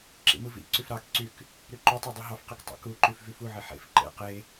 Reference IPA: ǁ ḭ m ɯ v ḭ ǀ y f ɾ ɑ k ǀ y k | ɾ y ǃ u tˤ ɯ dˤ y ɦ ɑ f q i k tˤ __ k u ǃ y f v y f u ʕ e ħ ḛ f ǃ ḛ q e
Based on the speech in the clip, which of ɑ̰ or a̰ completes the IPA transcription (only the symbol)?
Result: ɑ̰